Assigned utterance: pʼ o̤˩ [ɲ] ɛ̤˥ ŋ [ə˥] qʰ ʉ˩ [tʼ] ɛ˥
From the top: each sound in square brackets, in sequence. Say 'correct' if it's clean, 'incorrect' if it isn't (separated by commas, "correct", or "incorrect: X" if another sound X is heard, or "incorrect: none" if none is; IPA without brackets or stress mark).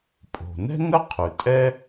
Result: incorrect: n, correct, correct